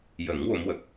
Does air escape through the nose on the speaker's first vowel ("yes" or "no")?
no